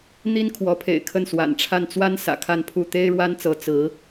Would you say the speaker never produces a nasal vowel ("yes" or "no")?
yes